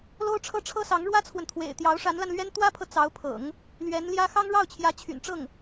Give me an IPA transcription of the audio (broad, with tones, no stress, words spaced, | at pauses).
lo˥ʊ̯ʈ͡ʂʰɤ˥ʈ͡ʂʰɤ˥sɑ˧˥ŋ ɻwä˥t͡sʰwə˨nt̪ʰwḛ˨˩ɪ̯ t̪jɑ˧˥ʊ̯ʂa˧˥nla˧nlɥɛ˥n t̪wä˥pʰɤ˨ t͡sɑ˧˥ʊ̯pʰɤ̰˨˩˦ŋ | lɥɛ˧˥nljä˥ xɑ˥ŋɻɑ˥˩ʊ̯t͡ɕʰjä˧˥ t͡ɕʰy̰˨˩nʈ͡ʂɤ˥˩ŋ